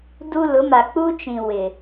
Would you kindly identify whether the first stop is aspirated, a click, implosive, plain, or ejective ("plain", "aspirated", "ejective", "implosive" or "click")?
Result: plain